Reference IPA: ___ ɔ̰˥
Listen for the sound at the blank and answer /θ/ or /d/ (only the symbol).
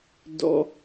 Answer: d